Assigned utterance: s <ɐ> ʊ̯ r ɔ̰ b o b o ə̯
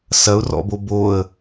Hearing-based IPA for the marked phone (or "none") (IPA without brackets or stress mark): ɐ